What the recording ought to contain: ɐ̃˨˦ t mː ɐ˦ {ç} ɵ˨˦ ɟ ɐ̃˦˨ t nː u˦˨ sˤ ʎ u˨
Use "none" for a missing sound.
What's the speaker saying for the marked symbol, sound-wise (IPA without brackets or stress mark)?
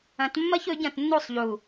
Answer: ç